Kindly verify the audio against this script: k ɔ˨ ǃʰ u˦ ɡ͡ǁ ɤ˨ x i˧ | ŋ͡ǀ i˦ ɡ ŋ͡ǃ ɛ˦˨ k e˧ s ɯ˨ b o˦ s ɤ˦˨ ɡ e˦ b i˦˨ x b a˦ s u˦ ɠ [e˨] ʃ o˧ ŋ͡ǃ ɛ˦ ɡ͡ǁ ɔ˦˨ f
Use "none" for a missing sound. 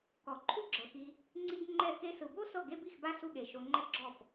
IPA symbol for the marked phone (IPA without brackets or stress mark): e˨